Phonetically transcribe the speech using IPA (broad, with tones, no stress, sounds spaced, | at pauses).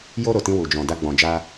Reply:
j o˧ ɾ o˨ t ĩ˧ w u˨ d͡ʒ ɔ̃˨ d a˧ ɡ͡b ɔ̃˨ d͡ʒ a˧